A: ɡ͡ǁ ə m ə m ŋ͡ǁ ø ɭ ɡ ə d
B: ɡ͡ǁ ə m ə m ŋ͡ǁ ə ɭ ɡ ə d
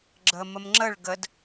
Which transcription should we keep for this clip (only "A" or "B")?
B